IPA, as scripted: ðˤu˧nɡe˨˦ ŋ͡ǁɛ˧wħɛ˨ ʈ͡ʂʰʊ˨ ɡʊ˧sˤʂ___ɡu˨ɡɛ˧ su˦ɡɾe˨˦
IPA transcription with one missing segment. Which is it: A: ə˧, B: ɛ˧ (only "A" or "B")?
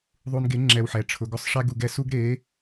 B